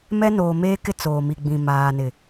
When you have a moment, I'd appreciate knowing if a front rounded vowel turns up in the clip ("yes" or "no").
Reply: no